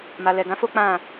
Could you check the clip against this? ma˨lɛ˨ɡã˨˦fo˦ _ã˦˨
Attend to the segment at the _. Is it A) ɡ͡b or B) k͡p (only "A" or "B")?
B